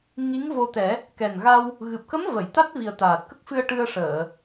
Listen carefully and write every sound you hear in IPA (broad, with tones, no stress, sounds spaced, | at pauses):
ŋ i˧˥ ŋ v o˧ t̪ ɛ˨˩˦ | k ɛ˨˩ n ɣ a˧ w | ɣ ɨ˨˩ p̚ k ə˧˥ m v ə˨˩˨ j t̪ a˦˥ t̚ v i˨˩ ə̯ t̪ aː˨˩ t̚ k ə˦˥ k̚ f ɨ˧ ə̯ ʈ ɨ˧ ə̯ ʂ əː˨˩˨